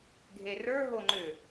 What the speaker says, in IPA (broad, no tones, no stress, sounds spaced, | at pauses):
ɡʱ e r ə˞ ɦ o ŋ͡ǃ ʏ